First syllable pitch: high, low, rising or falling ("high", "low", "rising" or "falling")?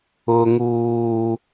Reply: high